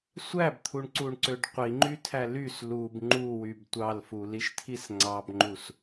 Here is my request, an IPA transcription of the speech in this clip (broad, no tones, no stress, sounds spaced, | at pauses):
sʷ æ b t̪ʰ u ɳ ǀ u ɳ ǀ ø ɖ qʷ i ŋ͡ǃ y tʰ æ l y s l u b ŋ͡ǃ u w y b tʷ ɑ l f u l i ʃ tʰ i s ŋ͡ǀ ɑ b ŋ͡ǃ u s